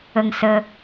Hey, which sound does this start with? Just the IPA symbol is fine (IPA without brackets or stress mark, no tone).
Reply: ə